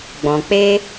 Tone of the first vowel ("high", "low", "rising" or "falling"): low